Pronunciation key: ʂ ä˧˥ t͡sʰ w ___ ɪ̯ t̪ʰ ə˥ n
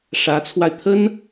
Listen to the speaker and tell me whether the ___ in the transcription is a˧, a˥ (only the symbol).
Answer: a˧